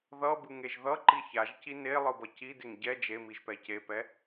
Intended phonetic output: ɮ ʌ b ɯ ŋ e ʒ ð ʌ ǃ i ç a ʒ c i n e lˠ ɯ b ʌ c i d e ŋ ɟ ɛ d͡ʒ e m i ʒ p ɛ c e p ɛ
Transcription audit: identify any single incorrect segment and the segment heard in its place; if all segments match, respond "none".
ɮ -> ð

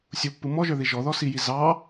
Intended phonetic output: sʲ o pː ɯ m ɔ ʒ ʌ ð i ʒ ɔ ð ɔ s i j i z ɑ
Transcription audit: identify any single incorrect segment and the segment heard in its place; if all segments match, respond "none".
ʌ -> ə˞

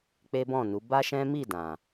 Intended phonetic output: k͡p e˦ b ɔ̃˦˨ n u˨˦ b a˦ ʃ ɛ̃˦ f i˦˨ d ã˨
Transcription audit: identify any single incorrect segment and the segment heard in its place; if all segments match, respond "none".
f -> m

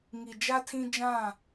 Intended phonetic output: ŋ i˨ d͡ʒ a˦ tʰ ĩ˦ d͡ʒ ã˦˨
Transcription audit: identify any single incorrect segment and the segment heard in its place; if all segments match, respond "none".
none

